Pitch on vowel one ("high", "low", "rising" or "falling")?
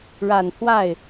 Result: low